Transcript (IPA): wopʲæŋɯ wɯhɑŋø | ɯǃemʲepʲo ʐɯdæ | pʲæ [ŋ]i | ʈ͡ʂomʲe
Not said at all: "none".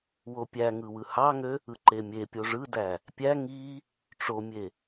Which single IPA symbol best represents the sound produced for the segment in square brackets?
ŋ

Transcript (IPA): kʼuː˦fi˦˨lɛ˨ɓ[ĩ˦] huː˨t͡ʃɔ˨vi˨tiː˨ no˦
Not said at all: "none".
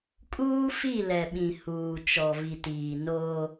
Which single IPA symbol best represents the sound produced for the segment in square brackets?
ĩ˨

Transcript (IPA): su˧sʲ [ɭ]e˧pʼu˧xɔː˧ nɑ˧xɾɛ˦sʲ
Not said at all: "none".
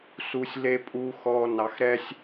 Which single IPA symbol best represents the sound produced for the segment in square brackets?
l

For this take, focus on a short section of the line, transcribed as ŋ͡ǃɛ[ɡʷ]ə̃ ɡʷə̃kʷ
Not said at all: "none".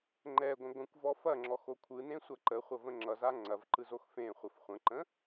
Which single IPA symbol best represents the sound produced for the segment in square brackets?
ɡʷ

